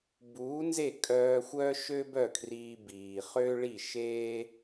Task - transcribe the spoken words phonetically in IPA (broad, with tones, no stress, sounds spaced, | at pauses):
b uː˩˥ n z e˥˩ kʼ œː˧ xʷ œ˥ ʃ ø˥ b œ˥˩ kʰ r iː˧ b iː˩ χ ø˥ ɭ i˥˩ ʃ eː˥